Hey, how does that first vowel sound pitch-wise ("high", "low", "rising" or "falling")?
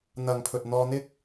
low